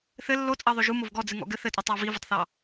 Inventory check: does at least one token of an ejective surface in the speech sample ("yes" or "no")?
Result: yes